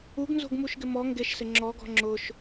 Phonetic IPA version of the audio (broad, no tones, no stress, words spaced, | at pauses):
uɡnzo̤ɡmuʃɡɪ mɔ ŋɡeʃsɪ ŋ͡ǁɔɡɔ̤ ŋ͡ǁʊʃ